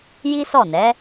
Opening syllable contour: high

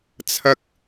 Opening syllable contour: high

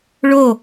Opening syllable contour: falling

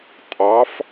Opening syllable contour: rising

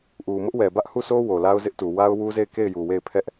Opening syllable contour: low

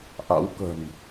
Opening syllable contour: rising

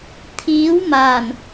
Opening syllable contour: rising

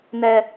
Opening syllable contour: high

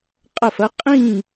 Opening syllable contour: falling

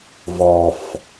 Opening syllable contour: high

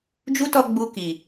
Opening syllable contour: high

